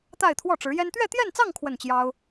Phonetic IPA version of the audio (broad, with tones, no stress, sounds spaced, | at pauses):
t̪ a˥˧ ɪ̯ t̪ʰ w ɔ˥˩ ʈ͡ʂ ɻ̩˧˥ j ɛ˥ n t̪ ɥ ɛ˥˧ t̪ j ɛ˥˧ n t͡s ɑ˥˧ ŋ kʰ w ə˥˩ n t͡ɕ j ɑ˥ ʊ̯